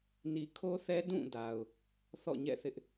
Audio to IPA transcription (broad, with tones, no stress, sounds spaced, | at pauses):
n i˨ kʰ o˦ θ ɛ˦ d ũ˦˨ d a˨ ʊ̯ | θ ɔ̰˦˨ ɲ ɛ̰˦˨ θ ɪ˦ ʔ